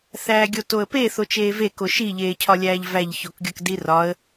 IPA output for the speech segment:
θæːɡʲotoə̯pe θot͡ʃeːve koʃi ʎeːcʰɒlʲæːʎvæʎ çokɡʲɒkdirɒə̯

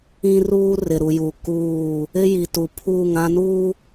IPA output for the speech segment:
ĩ˦ruː˦ rɪ˨ɾu˨ju˨ kuː˦˨ | ɪ˦ji˨tu˨pʰuː˦˨ŋ ã˦nuː˦

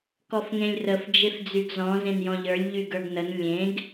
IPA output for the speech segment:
kɔfŋẽlʲrəf d͡ʒefd͡zyɡzɔ̃ zẽnjɔ̃ʎə˞lʲ ʎyɡə˞ɡnən lʲẽɡ

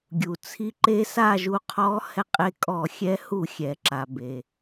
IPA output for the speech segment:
ɡʲu˩t͡sʰi˧ǃe˧˥ sa˥˨ʒu˧qʰɔ˧˥ hɛ˧qʼe˧ kʼɔ˧˩˧xʲɛ˧˥ hu˧˩˧xʲɛ˩ǁa˩ be˩

